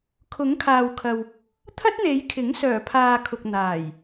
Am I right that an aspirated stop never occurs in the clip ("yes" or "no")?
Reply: no